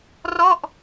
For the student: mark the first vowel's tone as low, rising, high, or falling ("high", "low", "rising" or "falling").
falling